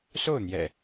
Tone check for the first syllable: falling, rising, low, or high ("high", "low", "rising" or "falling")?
falling